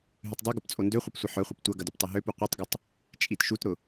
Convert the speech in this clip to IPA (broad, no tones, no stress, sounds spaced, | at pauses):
ɦ y tˤ dˤ i ɡ ʊ p t͡sʼ o n d ø χʷ ə p sʷ ɪ ħ œ χʷ ɐ p tʷ ɐ ɡ ɐ d y p tˤ ɐ ɦ ø p u qʷ i tˤ ɡ ʏ tˤ | t͡ʃʼ i t ʃ u t ɾ ʊ